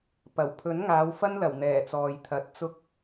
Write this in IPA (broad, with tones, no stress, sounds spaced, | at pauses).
p ɐ˨˩ w pʰ ɵ˨˥ n ŋ aː˨˧ w f ɐ˥ n l ɐ˨˩ w n̪ ɛː˨˩ t͡s ɔː˨ j t̪ʰ ɐ˨˥ t̚ t͡s ʊ˧ k̚